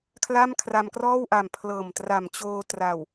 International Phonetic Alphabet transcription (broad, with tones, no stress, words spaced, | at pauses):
kʰla˥˩mkʰra˧mkrɔː˥˩wʔa˨˩m pʰlɤː˨˩mtra˨˩mt͡ɕoː˧tra˨˩w